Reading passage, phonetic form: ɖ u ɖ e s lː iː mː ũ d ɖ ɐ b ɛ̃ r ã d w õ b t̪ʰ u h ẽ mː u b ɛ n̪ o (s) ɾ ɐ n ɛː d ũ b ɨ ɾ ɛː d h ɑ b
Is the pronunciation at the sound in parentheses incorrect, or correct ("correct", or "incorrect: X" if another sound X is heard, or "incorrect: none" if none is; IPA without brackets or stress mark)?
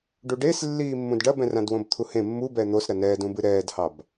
correct